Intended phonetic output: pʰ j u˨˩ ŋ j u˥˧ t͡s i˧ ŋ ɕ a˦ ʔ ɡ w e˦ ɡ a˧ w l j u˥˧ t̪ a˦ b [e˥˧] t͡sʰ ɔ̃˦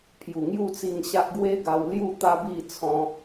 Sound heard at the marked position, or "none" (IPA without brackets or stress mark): i˥˧